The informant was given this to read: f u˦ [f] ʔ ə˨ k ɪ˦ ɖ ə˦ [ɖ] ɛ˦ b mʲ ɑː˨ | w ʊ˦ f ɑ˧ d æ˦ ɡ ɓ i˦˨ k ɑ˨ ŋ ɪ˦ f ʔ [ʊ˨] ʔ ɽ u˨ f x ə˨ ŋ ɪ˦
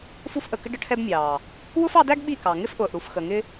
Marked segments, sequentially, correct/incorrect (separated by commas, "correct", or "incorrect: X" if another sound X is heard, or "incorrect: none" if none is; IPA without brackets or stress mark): correct, incorrect: ʈʰ, incorrect: ʊː˨